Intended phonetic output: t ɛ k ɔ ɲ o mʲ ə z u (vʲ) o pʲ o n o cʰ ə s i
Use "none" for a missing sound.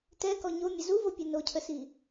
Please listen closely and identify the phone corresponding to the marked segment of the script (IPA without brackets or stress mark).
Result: v